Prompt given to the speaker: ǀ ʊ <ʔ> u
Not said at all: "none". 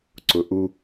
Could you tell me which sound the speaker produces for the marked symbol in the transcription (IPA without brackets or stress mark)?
ʔ